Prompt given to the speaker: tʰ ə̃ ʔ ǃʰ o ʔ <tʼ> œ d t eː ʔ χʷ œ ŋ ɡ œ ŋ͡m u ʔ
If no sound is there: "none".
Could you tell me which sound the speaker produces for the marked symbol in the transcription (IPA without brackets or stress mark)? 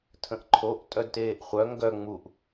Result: tʼ